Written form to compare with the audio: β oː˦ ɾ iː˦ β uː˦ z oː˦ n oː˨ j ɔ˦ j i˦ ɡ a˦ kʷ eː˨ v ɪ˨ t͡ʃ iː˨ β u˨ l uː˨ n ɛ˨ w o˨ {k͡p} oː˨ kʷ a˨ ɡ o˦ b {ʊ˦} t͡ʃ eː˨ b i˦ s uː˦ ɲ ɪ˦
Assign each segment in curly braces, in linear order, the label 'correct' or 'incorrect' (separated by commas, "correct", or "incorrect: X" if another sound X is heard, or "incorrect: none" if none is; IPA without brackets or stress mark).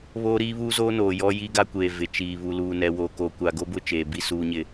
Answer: incorrect: k, correct